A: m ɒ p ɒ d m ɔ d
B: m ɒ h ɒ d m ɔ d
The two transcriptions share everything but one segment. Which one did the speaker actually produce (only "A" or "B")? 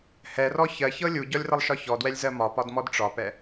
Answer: A